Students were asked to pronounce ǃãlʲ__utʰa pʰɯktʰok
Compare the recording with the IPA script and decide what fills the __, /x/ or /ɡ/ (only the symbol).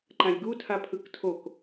ɡ